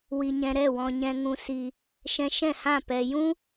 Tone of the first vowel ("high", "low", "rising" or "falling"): low